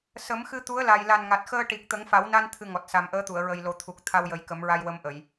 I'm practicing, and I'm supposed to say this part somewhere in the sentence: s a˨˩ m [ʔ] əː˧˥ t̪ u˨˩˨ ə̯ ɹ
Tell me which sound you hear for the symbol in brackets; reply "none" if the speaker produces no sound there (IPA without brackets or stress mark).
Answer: ʔ